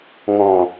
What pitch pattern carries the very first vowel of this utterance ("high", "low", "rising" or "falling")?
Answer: low